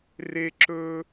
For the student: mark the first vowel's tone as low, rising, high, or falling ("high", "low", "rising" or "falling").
high